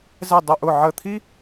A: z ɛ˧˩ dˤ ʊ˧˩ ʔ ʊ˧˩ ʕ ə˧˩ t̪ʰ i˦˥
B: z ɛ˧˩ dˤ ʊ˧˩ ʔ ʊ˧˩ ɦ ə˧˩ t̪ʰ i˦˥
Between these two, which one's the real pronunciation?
A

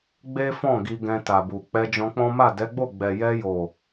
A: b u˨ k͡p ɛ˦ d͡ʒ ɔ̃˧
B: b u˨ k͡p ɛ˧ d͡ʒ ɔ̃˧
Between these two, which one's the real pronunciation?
B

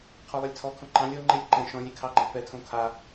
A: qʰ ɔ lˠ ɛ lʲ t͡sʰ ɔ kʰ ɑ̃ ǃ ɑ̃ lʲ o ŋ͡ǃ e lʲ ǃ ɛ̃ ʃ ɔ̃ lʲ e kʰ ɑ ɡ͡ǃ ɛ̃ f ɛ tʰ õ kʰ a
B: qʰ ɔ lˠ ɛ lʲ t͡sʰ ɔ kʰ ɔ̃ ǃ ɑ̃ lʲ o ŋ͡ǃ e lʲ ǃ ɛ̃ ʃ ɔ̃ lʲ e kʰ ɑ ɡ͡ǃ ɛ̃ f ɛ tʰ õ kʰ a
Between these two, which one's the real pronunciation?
B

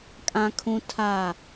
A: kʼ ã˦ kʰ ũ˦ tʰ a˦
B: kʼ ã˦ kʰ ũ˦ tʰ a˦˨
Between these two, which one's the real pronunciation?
B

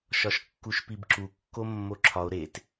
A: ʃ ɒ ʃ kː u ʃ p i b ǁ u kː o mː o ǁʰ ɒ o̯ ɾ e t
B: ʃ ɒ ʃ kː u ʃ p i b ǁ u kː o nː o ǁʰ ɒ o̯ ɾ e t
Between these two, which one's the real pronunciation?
A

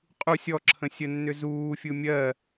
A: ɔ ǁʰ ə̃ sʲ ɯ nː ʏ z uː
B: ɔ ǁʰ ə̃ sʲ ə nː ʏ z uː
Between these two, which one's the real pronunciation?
B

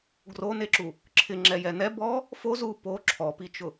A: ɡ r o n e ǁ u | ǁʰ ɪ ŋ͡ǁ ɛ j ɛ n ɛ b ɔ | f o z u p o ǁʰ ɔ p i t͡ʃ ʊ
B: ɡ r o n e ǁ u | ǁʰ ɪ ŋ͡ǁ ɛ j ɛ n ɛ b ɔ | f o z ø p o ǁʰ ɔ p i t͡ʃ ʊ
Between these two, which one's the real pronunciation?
A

